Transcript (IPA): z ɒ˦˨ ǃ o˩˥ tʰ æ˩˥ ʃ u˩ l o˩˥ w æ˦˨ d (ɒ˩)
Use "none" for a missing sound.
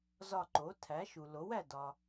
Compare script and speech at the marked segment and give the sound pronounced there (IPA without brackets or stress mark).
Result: ɒ˩